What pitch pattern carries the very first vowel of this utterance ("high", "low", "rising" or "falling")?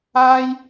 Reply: high